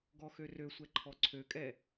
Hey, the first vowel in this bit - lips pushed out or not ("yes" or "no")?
yes